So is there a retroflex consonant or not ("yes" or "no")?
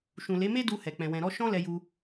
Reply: no